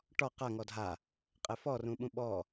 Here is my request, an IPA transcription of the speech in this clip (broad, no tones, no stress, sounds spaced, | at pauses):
ʈ ɔ q a ŋ ɔ dʱ a | qʼ ɛ f ɔ r ũ ɓ ũ ɓ ɔ